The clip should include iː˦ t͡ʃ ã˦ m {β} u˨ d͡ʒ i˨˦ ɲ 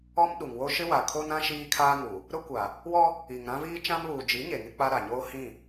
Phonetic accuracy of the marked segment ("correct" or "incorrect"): correct